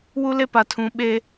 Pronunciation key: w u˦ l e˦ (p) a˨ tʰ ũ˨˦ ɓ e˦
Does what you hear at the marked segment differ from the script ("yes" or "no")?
no